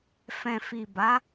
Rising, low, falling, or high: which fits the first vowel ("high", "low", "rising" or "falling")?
low